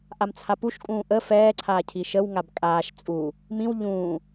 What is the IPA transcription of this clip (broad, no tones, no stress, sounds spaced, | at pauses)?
ʔ a m t͡sʰ a p u ʃ kʼ ũː ʔ ə f ɛː ǀʰ aː cʰ i ʃ ə w ŋ a b kʼ aː ʃ t͡sʼ u | m ĩ w ʎ ũː